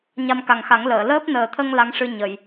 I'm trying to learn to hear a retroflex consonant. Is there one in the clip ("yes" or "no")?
yes